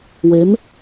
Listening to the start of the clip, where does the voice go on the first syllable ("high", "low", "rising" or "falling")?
rising